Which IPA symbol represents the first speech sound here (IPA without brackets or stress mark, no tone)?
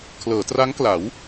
kʰ